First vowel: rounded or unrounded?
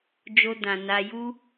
rounded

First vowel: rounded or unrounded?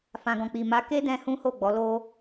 unrounded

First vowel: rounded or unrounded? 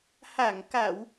unrounded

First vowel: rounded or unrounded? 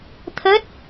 unrounded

